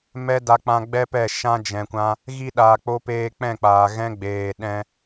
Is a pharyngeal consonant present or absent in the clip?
absent